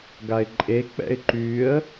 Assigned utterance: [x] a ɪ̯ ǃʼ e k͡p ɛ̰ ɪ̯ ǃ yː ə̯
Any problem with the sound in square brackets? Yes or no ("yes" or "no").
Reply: yes